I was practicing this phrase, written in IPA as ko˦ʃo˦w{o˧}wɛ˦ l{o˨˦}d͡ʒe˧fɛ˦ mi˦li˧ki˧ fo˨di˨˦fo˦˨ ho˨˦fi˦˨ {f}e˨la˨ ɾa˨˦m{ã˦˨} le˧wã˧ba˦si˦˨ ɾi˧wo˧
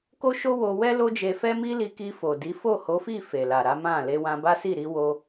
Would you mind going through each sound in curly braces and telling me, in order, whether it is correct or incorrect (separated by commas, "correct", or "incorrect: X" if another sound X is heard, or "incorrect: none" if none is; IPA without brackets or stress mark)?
correct, incorrect: o˦, correct, correct